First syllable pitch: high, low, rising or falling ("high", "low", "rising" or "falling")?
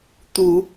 rising